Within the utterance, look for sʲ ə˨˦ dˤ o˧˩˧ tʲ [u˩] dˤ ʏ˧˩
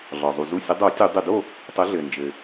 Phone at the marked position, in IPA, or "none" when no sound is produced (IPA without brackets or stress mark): u˧˩˧